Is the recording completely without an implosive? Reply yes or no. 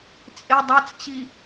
yes